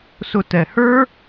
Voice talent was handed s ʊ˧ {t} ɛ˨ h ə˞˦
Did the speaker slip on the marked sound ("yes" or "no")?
no